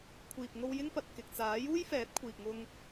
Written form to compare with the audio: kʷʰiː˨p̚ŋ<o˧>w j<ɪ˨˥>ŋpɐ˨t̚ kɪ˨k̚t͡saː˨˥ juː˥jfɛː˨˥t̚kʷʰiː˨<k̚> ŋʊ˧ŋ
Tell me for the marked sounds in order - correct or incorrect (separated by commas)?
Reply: correct, incorrect, correct